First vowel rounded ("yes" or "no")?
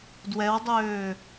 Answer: no